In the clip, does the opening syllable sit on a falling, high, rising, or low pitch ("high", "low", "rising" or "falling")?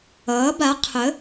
rising